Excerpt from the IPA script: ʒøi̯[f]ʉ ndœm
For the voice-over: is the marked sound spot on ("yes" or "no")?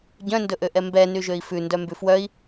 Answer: yes